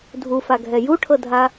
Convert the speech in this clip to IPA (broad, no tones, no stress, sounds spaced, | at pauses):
dʱ u f a ɡʱ ɛ j u ʈʰ ɤ dʱ a